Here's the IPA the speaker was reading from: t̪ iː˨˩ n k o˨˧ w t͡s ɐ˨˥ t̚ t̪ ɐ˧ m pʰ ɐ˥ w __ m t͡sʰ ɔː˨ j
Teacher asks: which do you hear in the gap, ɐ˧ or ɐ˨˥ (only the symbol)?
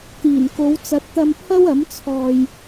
ɐ˨˥